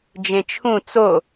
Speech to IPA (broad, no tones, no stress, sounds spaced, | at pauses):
d͡ʒ ẽ t͡ʃʰ ũ t͡s o